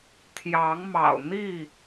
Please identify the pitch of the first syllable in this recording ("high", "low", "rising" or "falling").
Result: rising